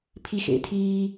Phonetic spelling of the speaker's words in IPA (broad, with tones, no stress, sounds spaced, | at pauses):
pʰ i˦˨ x ḛ˨˥ tʰ iː˦